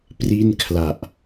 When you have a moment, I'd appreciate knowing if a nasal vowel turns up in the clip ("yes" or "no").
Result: no